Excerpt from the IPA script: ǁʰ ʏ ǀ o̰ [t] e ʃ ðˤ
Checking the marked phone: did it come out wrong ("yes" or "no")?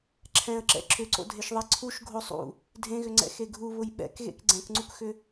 yes